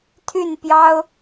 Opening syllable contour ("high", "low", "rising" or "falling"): falling